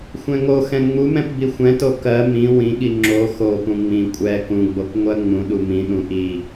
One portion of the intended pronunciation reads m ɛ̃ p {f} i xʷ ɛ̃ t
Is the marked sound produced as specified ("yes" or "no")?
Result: no